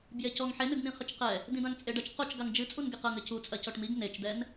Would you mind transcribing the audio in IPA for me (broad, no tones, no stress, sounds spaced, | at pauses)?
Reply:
b j e c ɔ ŋ ħ e n ɨ ɡ n̪ ĩ χ ɘ t͡ʃ q ɛ | d ĩ d ã ŋ t͡sʼ e ɖ ɐ t͡ʃ q o t͡ʃ ɡ a ŋ d͡ʒ ɨ t͡sʼ u n ɡ e q ɐ ŋ ɘ c u t͡sʼ ɐ c ɔ ʈ m i ɡ n e t͡ʃ d̪ ɛ n